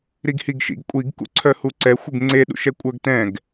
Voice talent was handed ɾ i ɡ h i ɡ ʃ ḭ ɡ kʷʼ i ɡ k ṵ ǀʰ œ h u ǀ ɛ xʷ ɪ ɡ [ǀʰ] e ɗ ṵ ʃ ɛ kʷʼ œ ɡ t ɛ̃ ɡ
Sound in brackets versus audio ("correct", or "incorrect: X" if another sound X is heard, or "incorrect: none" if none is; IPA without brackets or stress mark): incorrect: ŋ͡ǀ